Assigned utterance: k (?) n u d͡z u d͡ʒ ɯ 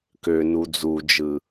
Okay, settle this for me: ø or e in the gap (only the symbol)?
ø